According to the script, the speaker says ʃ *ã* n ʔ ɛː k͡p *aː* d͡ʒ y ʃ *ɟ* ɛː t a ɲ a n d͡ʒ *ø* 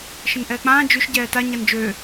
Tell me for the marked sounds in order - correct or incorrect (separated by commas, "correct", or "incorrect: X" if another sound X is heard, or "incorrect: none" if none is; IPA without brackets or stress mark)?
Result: incorrect: ə̃, incorrect: ãː, correct, correct